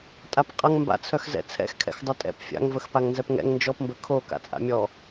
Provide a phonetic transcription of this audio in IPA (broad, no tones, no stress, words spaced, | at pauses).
tʼapqʼɐŋ mba̰t͡sʰœxzɛ̰ t͡sʰɛ̰xkʰɛ̰x dˤœtʼɛ̰p fʲa̰ŋvəx paŋnzɛpŋɛ̰ŋ nd͡ʒɔpmbə kʰo ka̰t͡sʼa̰mʲɔ